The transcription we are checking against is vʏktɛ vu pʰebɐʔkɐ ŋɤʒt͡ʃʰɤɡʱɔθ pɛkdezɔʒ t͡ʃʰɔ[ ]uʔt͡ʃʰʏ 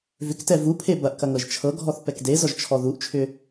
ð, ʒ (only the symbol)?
ð